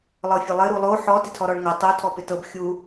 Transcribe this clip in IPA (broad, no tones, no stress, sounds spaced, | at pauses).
lˠ ɤ fʲ ɘ lˠ ɘ ɾ u lˠ o ħ ɔ t ɪ tʰ ɔ ɾ ɔ ɭ ŋ ɤ tˤ o tʰ ɔ p ɪ t ɤ b xʲ u